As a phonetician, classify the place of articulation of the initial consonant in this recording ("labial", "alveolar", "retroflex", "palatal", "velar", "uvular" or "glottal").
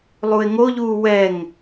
alveolar